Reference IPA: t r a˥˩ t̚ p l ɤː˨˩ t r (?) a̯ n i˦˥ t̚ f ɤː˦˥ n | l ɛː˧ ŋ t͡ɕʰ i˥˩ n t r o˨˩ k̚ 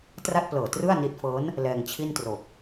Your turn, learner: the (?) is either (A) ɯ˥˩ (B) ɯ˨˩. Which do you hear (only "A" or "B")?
A